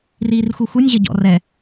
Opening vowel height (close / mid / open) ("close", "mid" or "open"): close